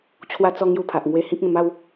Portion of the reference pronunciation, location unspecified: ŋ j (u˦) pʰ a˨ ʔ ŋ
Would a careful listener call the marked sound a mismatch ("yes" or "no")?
yes